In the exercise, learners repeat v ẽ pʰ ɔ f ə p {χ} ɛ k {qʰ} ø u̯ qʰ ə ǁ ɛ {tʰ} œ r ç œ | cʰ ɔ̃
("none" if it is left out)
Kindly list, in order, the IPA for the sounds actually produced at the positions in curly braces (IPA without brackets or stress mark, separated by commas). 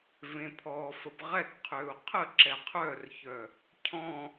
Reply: ʁ, qʰ, qʰ